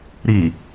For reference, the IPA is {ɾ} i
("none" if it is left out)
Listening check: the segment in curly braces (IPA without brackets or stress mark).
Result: ɾ